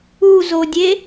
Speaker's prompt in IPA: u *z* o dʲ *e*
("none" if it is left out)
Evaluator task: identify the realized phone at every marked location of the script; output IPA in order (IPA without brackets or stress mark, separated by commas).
z, e